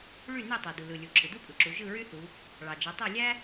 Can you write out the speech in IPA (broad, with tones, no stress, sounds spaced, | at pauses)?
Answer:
ɭ y˥˨ n e˥˨ tˤ e˩ d u˩ l ɯ˩ lʲ u˩ ǁʰ ɯ˩ d u˥ pʼ ɯ˩ ǁ u˩˧ ʒ ɯ˥˨ ɹ y˥ θ u˩˧ | ɭ ɑ˩ d͡ʒ e˩˧ tˤ æ˥˨ lʲ æ˥